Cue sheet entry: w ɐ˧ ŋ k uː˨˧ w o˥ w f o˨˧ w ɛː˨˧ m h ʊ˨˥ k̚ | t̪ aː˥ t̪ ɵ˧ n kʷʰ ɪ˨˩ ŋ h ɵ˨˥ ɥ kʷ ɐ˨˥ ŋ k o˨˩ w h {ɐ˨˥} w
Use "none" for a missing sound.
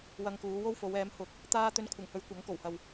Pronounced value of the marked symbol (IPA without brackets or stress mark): ɐ˨